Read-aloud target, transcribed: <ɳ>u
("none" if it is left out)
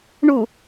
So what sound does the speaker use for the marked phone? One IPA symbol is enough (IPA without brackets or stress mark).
ɳ